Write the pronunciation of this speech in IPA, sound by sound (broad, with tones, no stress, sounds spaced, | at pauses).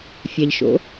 fʲ a˧ ʎ ʃ o̰˧˥